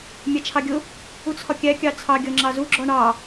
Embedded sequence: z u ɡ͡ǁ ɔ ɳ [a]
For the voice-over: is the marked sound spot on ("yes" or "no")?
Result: no